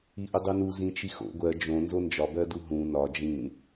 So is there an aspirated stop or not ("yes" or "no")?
no